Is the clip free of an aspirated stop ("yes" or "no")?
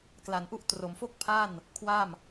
no